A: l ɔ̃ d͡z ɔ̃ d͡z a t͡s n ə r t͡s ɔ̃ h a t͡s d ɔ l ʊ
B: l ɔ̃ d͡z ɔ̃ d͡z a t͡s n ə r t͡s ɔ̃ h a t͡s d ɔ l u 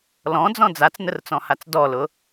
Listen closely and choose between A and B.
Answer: A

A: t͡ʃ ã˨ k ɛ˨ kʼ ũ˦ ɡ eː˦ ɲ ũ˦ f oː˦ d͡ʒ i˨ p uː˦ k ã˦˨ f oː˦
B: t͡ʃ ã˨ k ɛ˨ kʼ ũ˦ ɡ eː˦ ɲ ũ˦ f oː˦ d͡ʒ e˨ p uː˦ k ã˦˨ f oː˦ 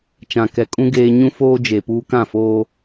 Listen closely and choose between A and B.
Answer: B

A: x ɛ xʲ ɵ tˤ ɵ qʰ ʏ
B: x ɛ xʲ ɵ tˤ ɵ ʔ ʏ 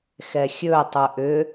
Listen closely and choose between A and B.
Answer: B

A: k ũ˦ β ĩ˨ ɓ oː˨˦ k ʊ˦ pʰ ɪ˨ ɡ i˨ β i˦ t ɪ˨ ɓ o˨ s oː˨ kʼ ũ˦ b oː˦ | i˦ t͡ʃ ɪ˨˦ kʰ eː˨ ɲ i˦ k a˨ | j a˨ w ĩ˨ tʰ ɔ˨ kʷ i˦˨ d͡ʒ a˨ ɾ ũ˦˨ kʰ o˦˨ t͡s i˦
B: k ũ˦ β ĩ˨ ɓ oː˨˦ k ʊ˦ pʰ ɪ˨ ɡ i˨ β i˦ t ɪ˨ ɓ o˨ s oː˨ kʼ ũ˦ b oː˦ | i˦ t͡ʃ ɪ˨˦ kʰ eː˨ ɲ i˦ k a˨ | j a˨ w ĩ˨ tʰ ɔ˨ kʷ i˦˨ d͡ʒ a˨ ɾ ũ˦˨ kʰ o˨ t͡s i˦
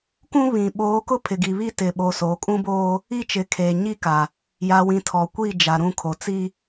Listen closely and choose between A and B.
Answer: B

